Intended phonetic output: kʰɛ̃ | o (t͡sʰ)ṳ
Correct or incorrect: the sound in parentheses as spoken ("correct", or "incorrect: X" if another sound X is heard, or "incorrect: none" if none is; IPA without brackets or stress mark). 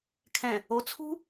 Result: correct